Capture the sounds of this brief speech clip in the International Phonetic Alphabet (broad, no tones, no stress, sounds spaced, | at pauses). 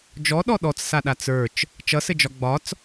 d͡ʒ ɔ ɗ ɔ ɗ ɔ t͡s s a ɗ a t͡s ə˞ t͡ʃ | t͡ʃ ʌ s ɘ d͡ʒ ɒ ɡ͡b ɒ t͡s